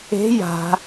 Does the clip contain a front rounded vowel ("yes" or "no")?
no